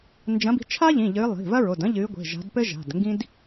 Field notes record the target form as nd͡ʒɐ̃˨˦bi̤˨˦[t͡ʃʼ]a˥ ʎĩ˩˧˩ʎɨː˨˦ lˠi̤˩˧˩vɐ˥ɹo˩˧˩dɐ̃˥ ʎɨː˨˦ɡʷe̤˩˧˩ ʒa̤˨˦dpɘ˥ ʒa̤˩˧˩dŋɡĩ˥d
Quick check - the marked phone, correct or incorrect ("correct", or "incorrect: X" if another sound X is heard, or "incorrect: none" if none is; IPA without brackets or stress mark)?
incorrect: t͡ʃʰ